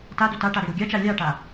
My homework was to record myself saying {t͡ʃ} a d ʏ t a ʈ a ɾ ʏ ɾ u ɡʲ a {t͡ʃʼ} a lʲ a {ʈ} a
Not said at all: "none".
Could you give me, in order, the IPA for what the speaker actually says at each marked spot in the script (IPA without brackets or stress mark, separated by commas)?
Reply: t, t͡ʃ, ʈ